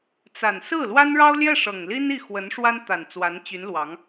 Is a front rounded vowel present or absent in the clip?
present